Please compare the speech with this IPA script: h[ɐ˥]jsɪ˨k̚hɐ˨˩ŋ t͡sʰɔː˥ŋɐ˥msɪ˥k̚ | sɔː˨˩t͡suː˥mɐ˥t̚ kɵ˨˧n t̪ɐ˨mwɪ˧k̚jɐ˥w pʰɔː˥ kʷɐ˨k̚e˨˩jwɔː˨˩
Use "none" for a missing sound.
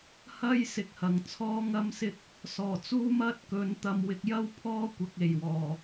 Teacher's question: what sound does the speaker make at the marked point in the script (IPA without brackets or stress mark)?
ɐ˥